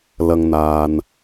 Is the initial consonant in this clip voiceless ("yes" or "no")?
no